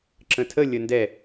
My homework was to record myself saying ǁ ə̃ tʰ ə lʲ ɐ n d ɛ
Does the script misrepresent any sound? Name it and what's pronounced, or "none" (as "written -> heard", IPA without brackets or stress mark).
ɐ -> ə